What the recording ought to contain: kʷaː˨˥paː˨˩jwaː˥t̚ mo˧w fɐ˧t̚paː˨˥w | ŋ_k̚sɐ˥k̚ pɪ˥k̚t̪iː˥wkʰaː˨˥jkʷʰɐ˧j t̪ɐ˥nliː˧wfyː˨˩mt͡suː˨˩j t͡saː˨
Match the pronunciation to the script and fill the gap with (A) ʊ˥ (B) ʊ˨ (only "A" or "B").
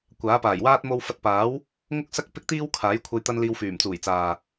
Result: A